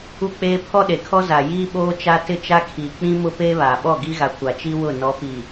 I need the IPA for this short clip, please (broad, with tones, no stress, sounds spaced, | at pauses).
u˦ k͡p eː˦ pʰ ɔ˦ ɗ e˨ kʰ ɔ˦ z a˨ j iː˦ ɓ oː˦ t͡ʃ a˦ t ɪ˦˨ t͡ʃ a˦ kʰ iː˨ k͡p ĩ˦ m ʊ˦ p eː˦ β aː˨ ɓ ɔ˦˨ ɡ i˦ ɣ a˨ kʷ a˨ t͡ʃ i˦ w ʊ˦˨ n ɔ˨˦ p i˨